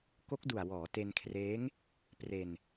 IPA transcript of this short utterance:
k o˦˥ k̚ d u˨˩ a̯ w ɔː˩˦ t e˧ n kʰ r eː˦˥ ŋ | p r e˧ n

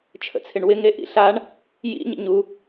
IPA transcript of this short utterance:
t͡ʃʰ ə̰ t͡sʰ ɪ ɳ w ɪ ŋ e ʔ ḭ ɬ a ɳ | j ḭ ɲ ə̰ ɲ u

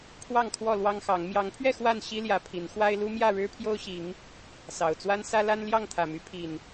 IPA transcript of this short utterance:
pʰ w ɑ˥˨ ŋ kʰ w ɔ˥˨ l w ɑ˦ ŋ x ɑ˨˦ ŋ m j ɑ˨˦ ŋ pʰ ɥ ɛ˥˨ x w a˥˨ n ɕ i˦ l j ä˨˦ pʰ i˨˦ n x w a˦ ɪ̯ l u˦ m j ä˥˨ ɻ ɻ̩˦ pʰ j o˦ ʊ̯ ɕ i˨˦ ŋ | s ɑ˨˩ ʊ̯ t͡s w a˦ n s ä˦ l a˦ n l j ɑ˥˨ ŋ t̪ʰ ä˨˩ m y˨˦ pʰ i˨˩ n

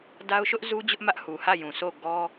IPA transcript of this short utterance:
d a˦ ʊ̯ ʃ ʊ˦ ʔ z u˦ d͡ʑ ʊ˦ ʔ m ä˦ ʔ h u˨ h ä˦˨ j ũ˨ s o˦˨ ɡ ɔ˦

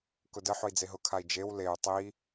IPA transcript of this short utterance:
k ʊ d ə ħ ʊ i̯ d͡z e ɦ ʊ kʰ a i̯ d͡ʒ e w l e y̯ tˤ i

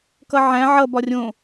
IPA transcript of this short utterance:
k ʌ ʕ æ̃ ʕ ʌ b ɒ rʲ õ

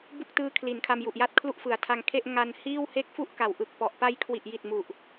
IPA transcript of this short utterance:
b u˥˩ k̚ t ɯː˦˥ kʰ l i˩˦ n kʰ a˧ m j u˨˩ ʔ j a˥˩ t̚ kʰ l u˥˩ ʔ f ɯ˨˩ a̯ tʰ a˧ ŋ kʰ e˥˩ ʔ ŋ a˧ n h iː˥˩ w h e˥˩ k̚ f u˥˩ ʔ k a˨˩ w ʔ ɯ˨˩ k̚ p ɔ˨˩ ʔ p a˦˥ j kʰ w i˨˩ ʔ j i˨˩ t̚ m u˨˩ ʔ

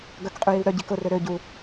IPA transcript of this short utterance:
ɡ œ k qʼ y j i w ɾ œ ɟ i k ʊ r ø ɾ ø ɟ u

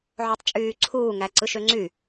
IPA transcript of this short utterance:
ʕ o tˤ t͡ʃʼ yː ǀʰ uː ŋ æ ǀ ɯ ʃ ø ŋ͡ǀ y

